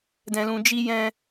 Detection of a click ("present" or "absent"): absent